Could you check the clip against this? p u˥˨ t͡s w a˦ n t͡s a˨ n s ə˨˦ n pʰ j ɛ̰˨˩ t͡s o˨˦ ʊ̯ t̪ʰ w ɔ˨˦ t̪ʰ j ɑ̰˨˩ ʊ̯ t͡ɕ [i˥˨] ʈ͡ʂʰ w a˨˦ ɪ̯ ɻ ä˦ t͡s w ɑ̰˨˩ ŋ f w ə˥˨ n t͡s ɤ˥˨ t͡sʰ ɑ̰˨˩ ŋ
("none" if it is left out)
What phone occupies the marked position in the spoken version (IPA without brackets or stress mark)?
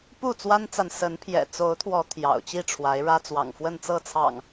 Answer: i˥˨